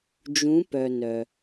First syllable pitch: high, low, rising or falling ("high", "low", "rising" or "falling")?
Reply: rising